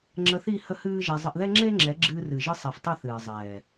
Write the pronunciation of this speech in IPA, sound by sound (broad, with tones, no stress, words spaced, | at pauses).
ŋ͡ǁə˧θi˦˨ hə˦hɨː˦ʒɛ˧ zˤə˧ʔðɛ˦ŋ͡ǁe˦ŋ͡ǁɛ˨˦ ɡ͡ǁɨː˧rɨ˨ʒɨ˧sˤɛ˨f tˤɨ˦˨θɨː˨ zˤɛː˨